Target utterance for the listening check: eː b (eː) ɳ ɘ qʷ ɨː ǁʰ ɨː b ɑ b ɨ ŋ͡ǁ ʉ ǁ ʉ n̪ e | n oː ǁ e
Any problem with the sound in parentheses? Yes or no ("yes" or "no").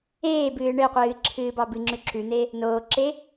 yes